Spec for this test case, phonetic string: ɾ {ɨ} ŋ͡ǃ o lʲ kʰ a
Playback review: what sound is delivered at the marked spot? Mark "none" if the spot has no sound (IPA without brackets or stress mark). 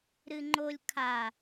ɨ